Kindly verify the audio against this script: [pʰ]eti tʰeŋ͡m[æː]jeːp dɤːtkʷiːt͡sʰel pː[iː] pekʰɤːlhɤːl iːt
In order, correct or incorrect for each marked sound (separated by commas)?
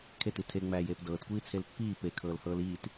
incorrect, correct, correct